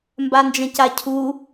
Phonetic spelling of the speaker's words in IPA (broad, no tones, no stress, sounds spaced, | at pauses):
m b a n d͡ʒ ɐ̃ c a cʰ u